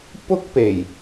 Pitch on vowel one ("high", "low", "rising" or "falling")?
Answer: high